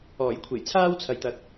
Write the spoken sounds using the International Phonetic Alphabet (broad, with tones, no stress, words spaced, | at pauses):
ɔː˨˩jkʷʰe˨˩jt͡sʰaː˥w t͡sʰɐ˨jt̪ɐ˨k̚